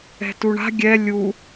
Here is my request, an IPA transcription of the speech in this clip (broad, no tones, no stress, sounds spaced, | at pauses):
ɛ̤ t u ɳ a̤ ɡʲ ɛ lʲ u